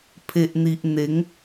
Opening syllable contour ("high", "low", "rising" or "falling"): low